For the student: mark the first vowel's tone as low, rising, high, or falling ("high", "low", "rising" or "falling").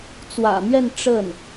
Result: low